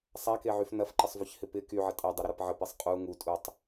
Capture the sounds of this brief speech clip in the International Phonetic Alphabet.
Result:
sˤakeʕyf nɐfǃəsˤvøçhɪ pɪ kyʕə tʼɐdˤɐɾɪɾɐp ʕəpesˤ qʼu ŋutʼutˤ

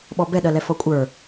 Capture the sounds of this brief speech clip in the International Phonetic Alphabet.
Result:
ɓɔbɛ ɗɜlɛfɔkʷʼə˞

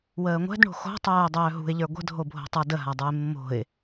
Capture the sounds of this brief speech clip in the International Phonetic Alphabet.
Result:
wəːŋʷɛ̤dɳo̤ xo̤ tˤœːʊ̯dˤœːɦṳɪ̯ʎə˞ ɡʷə̤dʱobʱo̤tˤə˞ dəɦadˤə˞ɪ̯ mːo̤ɪ̯

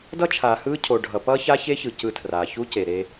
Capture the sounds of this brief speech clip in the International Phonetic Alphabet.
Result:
dʌ˦t͡ʃʰaː˨hɯː˦ cʰo˨ɖʱʌ˨ pʌː˦ça˦çe˦çɯ˨ cɯ˦tʰraː˨ çu˦ce˨ ɾe˦

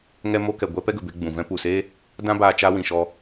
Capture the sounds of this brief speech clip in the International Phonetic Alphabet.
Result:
ŋɛ˧mo˧kɛ˨ ɡʷɛ˦pɛ˦ɡə˨be˧ ɡ͡bũ˨ vɛ̃˧pu˨se˦ | dã˧baː˨ t͡ʃa˧wĩ˨ʃɔ˧

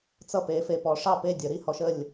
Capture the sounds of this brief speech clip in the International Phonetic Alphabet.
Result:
t͡sʌ˥˨pe˨˦ fe˨pɔ˨˦ʂɑ˥˨ pe˥˨ dʲə˨˩˦ɾi˥˨hɔ˦˥ʃ ə˥˨lʲ

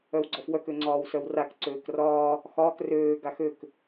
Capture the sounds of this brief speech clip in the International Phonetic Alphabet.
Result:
œwɡ͡ǀɒfwœk øŋ͡ǀɒːwsœwrak ǀøːkrɒː | xɒːk røː ɡaxøk

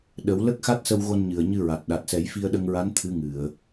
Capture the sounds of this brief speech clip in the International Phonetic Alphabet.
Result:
ɗə˨˩˦w lə˦˥k̚xa˦˥t̚sə˧wɣo˧n ɲɨ˨˩ə̯ɲɨ˧ɹa˨˩t̚ ɗa˨˩t̚sɛ˨˩˦j fi˧ə̯ɗə˧ŋɹa˧˥n t̪ʰɨ˧˥ŋɨ˨˩˨ə̯

